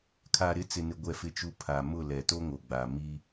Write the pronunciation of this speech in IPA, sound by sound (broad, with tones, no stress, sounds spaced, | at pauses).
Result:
kʰ a˨ ɾ ɪ˨˦ t͡s ɪ˨ n ɪ˨ ɡʷ ɛ˨ f ɪ˨ t͡ʃ u˨ pʰ a˨ m ʊ˦˨ l ɛ˨ t o˦ ŋ o˨ ɡ͡b a˨ m iː˦